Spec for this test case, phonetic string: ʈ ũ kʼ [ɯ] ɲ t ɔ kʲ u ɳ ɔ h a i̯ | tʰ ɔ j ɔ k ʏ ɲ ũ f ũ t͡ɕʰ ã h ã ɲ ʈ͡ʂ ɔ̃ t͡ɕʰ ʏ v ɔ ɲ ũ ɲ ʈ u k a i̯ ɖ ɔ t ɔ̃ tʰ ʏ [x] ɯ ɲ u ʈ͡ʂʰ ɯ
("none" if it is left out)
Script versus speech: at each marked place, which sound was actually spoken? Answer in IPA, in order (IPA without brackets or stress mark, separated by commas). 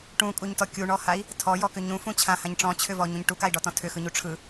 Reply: u, x